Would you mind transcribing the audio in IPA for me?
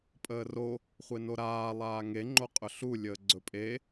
pʼ əː r o | χʷ e n o ɾ aː lˠ aː ŋ e ŋ͡ǃ o qʼ ɵ ɬ u lʲ əː ɡ͡ǀ ɵ pʼ e

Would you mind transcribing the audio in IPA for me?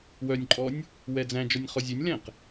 w œ nʲ ǃʼ ɔ nʲ | w ɛ d͡z æ̃ d͡ʒ ɔ nʲ χ ɔ zʲ ø nʲ l ɛ̃ q

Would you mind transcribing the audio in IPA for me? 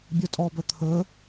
bʲ ɵ tʼ ɔ b ɵ t̪ʰ ɵ

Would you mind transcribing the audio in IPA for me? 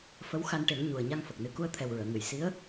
f ə˧˥ w x a˧ n ʈ e˨˩˦ ŋ ɲ u˨˩ ə̯ ɲ a˧ ŋ f ə˨˩ k̚ n ɨ˨˩˦ k u˧ ə̯ t̪ʰ ɛ˨˩ w ɹ əː˨˩˨ ŋ ɨ˨˩˨ j s i˧˥ ə̯

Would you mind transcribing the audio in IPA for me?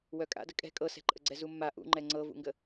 w œ kʼ a̰ d ə kʼ ɛ̤ kʼ ɤ s ɛ̤ ǃʼ ə ɡ͡ǀ ɛ z u mː a ʔ ṵ ŋ͡ǃ ɛ ŋ͡ǀ ɤ v ṵ ŋ ɡ ə

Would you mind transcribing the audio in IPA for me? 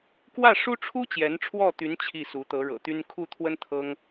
k w ä˥˩ ʂ u˥ ʈ͡ʂʰ u˥ t͡ɕ j ɛ˧˥ n ʈ͡ʂʰ w ɔ˥˩ t̪ y˧˥ n t͡ɕʰ i˥˩ s u˧˥ t̪ ɤ˧˥ ɻ ɤ̰˨˩ t̪ y˥ n kʰ u˥˩ t̪ʰ w ə˥ n t̪ʰ ɤ˥ ŋ

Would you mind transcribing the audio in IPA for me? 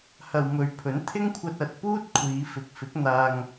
h ɐ˨ w m ɵ˨˧ ɥ pʰ ɵ˨˥ n t̪ʰ ɪ˥ ŋ kʷʰ ɐ˧ t̚ ɐ˨ t̚ p uː˥ t̚ kʷʰ iː˨˧ f ɪ˨ k̚ f ɪ˨˥ k̚ n̪ aː˧ ŋ

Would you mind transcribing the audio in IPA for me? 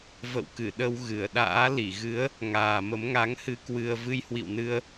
v ə̰˧˨ w k ɨ˧˩ ɗ ə˧ w ɣ ɨ˧˩ ə̯ ɗ a̰ː˧˥ l i˧˩ ɣ ɨ˨˦ ə̯ | ŋ aː˨˩ m ə˨˦ m ŋ a˨˦ ŋ h ɨ˧ k w ɨ˧ ə̯ v ɨ˧ j h w ḭ˧˨ w n ɨ˧ ə̯

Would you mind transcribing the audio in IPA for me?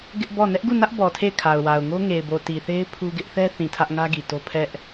ɡ ɪ˦ ʔ b ɔ˦˨ n ɛ˦ ʔ ɡ u˦˨ n ä˦ ʔ b ɔ˨ tʰ e˦˨ ɪ̯ kʰ a˨ ʊ̯ w a˨ ʊ̯ ŋ o˦ ŋ e˨ ɪ̯ b o˨ t i˨ θ e˦ ɪ̯ pʰ u˦ ɡ ɪ˦ ʔ θ ɛ˦ θ ĩ˨ tʰ ä˦ ʔ ŋ ä˦ ɡ i˨ t o˦ pʰ ɛ˦ ʔ

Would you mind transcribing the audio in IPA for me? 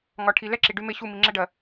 ŋ ɒ˧ ʈʰ i˧ l ɛ˦ ǁʰ i˨ ɖ y˧ m e˧ ɕ u˦˨ m i˧ ŋ͡ǁ ɛ˦ ɖ ɜ˧

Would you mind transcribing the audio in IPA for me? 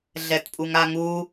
ɮ ɛ t pʼ u ŋ a ŋ u

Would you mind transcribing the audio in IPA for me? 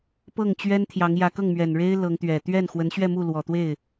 p ɤ˥˩ ŋ t͡ɕ ɥ ɛ˥ n t̪ʰ j ɑ˧˥ ŋ j ä˧˥ k ɤ˥˩ ŋ m ɥ ɛ˨˩ n ɻ e˥ ɪ̯ l ɤ˧˥ ŋ t̪ ɥ ɛ˨˩ t̪ ɥ ɛ˥˩ n x w ə˧˥ n ɕ ɥ ɛ˥˧ m u˥˩ l w ɔ˨˩ t̪ w e˥˩ ɪ̯

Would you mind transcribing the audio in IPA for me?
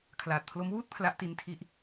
kʰ l aː˨˩ t̚ pʰ l o˦˥ m w uː˥˩ t̚ pʰ l a˦˥ ʔ t i˦˥ n tʰ i˦˥ ʔ

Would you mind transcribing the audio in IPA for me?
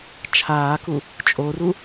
t͡ʃʰ aː k u | t͡ʃʼ o r u

